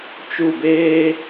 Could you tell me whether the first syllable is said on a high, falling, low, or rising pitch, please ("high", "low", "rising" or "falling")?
falling